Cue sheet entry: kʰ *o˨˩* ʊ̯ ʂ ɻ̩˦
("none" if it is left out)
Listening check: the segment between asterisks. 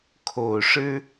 o˨˩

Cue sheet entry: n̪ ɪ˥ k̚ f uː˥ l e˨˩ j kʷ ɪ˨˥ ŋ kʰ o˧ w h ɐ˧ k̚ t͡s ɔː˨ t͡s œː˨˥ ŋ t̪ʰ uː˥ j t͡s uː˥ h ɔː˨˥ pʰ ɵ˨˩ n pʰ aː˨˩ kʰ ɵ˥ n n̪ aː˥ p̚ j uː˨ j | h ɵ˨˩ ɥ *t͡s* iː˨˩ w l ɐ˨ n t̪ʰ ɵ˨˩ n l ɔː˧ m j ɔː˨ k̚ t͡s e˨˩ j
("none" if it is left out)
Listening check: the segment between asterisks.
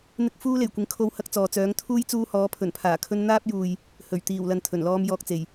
t̪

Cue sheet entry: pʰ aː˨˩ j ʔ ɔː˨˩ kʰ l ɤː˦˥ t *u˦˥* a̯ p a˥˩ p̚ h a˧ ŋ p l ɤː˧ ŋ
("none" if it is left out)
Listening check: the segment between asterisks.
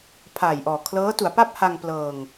u˩˦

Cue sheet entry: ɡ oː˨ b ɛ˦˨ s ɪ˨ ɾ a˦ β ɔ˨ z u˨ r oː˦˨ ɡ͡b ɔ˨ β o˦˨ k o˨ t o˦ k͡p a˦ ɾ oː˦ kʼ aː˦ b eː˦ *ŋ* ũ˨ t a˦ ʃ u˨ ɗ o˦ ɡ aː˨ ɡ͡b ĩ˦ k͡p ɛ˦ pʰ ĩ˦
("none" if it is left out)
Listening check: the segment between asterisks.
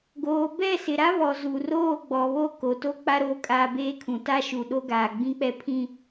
kʰ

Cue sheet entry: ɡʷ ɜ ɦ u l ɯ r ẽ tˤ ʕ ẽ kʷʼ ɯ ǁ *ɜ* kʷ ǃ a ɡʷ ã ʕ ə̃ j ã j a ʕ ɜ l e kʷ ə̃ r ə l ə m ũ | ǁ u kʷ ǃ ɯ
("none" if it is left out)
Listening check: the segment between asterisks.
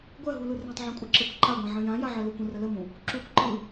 ɜ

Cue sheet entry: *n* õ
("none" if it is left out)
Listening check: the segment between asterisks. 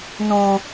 n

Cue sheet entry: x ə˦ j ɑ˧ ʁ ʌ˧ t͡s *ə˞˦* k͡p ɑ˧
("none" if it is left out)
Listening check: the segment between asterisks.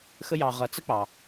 ə˦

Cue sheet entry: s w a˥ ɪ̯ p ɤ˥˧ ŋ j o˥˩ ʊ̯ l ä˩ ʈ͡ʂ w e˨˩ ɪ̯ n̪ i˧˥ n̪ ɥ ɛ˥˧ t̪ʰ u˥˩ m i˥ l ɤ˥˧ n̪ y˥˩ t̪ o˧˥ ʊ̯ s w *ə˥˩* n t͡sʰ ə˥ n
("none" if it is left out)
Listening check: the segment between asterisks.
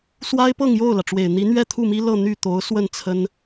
ə˥˩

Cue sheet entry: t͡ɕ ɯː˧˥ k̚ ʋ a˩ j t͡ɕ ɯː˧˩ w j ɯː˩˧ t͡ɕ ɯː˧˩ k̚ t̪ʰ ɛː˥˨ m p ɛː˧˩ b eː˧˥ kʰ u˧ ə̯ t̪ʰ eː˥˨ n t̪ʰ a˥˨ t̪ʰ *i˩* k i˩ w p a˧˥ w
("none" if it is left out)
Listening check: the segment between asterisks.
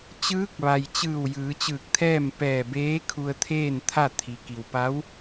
i˩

